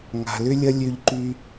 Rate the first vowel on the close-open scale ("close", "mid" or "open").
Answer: open